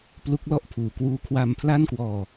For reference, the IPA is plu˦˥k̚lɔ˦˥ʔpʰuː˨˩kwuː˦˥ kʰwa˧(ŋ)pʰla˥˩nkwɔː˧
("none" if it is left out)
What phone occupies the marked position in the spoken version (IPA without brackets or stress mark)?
m